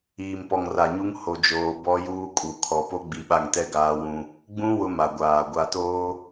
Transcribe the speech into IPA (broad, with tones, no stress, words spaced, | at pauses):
iː˨mpɔ˨ŋra˨ɲu˦ŋ ho˨d͡ʒoː˨ bɔ˦juː˦kʼu˨ kʰɔ˨po˦ ɡ͡bi˨ɓa˦˨ŋtɛ˦ ɡaː˦wũ˦ | ɡ͡bũ˦ wʊ˦ma˨ɡʷaː˨ ɡʷa˨toː˦